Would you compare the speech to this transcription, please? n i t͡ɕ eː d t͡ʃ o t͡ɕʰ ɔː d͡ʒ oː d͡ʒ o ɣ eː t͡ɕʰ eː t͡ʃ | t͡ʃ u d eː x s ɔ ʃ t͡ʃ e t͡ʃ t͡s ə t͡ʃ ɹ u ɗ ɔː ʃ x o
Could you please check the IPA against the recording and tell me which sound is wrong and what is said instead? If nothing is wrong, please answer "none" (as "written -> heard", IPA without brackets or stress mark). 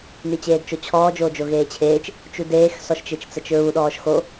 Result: none